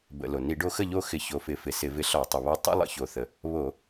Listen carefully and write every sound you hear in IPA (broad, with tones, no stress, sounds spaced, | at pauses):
b ə̰˧˩˧ l o˩ n i˧˩˧ ɖ o˧ x ə˥˨ ʎ o˥˨ x ɪ˧˩˧ ç o˩˧ f ɪ˩˧ f ɪ˩ s ɪ˧˩˧ v ɪ˧ ɬ ɒ˧˩˧ tˤ ə˩ β ɒ˧ tˤ ə̰˥ lˠ ə̰˩˧ ç o˩ θ ə˩ | β o˧˩˧